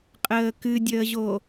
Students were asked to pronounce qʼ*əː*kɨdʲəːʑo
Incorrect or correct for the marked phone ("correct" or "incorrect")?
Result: correct